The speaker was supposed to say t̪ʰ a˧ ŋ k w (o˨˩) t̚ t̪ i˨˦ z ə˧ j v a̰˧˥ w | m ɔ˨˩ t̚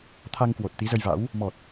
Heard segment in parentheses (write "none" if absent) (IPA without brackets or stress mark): o˨˩